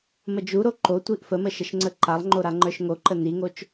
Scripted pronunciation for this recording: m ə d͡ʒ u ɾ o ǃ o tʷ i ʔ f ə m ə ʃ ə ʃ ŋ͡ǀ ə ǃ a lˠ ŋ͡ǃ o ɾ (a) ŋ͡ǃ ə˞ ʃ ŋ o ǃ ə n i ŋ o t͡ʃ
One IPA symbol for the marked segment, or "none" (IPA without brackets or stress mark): a